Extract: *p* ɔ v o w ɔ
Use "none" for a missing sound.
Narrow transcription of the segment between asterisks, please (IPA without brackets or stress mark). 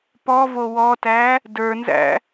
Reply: p